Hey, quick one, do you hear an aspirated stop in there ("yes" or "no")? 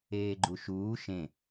no